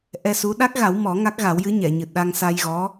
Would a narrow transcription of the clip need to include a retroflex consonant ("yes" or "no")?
no